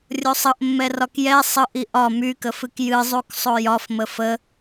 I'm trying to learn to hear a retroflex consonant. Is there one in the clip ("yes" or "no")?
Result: no